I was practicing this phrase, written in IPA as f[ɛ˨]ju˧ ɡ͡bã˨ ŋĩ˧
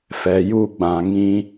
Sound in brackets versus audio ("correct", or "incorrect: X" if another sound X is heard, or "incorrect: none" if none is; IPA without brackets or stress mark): correct